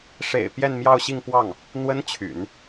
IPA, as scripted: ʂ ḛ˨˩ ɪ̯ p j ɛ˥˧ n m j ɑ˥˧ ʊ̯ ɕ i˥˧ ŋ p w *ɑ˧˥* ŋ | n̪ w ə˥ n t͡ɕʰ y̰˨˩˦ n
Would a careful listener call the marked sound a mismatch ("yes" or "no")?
yes